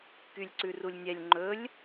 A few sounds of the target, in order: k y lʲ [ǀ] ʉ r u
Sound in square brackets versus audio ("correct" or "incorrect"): correct